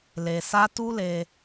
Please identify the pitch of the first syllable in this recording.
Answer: low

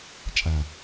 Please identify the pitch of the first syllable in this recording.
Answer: low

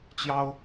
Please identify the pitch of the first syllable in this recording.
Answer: high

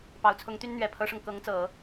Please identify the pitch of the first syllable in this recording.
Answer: low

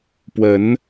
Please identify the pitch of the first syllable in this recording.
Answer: rising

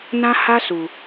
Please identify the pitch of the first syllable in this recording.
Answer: high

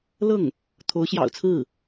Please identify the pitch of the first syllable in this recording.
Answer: falling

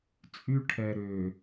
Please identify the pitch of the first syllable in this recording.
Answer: high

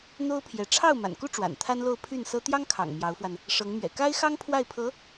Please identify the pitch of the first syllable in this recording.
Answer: high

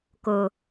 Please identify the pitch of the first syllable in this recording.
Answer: low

